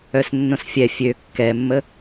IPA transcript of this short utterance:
œ s nː õ s fʲ ɛ fʲ ø kː ɛ mː ə

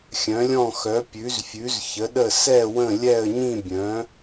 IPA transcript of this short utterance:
xʲ œ̃˨˥ lʲ ɔ̃˥˨ x œ˨˥ pʲ ʉ˨˥ z fʲ ʉ˨˥ z ç ə˨˥ ɗ ə˥˨ s ɛ˥˨ w ə̃˥˨ lʲ ɛ˥˨ ə̯ ɲ ĩ˥˨ bʲ œ̃˨˥

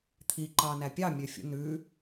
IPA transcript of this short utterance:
t̪ʰ i ǃ ɑː n æ pʲ ɑ mʲ ø fʲ ṵ n ʉ

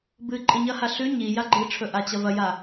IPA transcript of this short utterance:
b ɨ ǃʼ ɨ ɲ ɐ h a ɬ ʉ ɲ i j a ɡ͡ǃ ɨ ʈ͡ʂʰ ɵ ʔ a t͡ɕ ɐ v ɐ j a

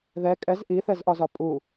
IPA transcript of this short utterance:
ð ɛ kʼ ɛ z ʔ i θ ɛ z ʔ ɒ z ɒ pʼ u

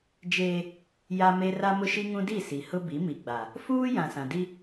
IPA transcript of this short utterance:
d͡ʒ eː˦ | j a˦ m e˦ r a˦ m ʊ˦ ʃ i˦ ŋ ũ˦ d i˦˨ s i˨ h ʊ˦ b i˨˦ m i˨ ɡ͡b a˨ | f uː˦ j ã˨ s ã˨ d i˦

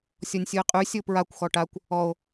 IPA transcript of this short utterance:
sʲ ɔ nʲ sʲ u e̯ qʼ y sʲ o p ɹ a kʷ x ɔ ʈ a kʷ | ɔ o̯

